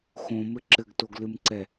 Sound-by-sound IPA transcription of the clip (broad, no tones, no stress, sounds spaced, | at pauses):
x õ m ɘ ǁ ɘ ɡ t o ɡ l ɨ m ǀ ɛ